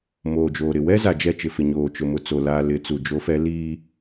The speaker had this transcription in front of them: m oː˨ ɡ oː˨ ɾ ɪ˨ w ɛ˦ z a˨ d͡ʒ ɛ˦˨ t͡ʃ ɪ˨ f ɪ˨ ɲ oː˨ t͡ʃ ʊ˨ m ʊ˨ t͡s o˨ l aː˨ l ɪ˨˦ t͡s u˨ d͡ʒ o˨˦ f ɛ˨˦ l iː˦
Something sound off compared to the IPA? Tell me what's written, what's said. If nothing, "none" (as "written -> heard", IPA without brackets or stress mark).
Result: ɡ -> d͡ʒ